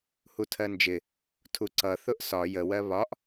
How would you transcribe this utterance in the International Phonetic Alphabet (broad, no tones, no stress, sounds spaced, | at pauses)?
h u tʰ ɜ n d͡ʒ ɪ | tʰ u ǀ ʌ θ ʊ ʔ s ɒ j ə w ɜ β ɒ ʔ